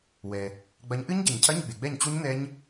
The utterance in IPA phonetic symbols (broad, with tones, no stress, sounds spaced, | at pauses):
w ɛ˨ | ɡ͡b ɐ˨˥ ɲ ʔ ɨ˦˥ ɲ ɟ ɘ˨˩˦ ɲ cʰ ɐ˧˥˧ ɲ ɡ͡b e˨ ɡ͡b ɛ˥˩ ɲ t͡ɕ u˦˥ ɲ n ɛ˦˥ ɲ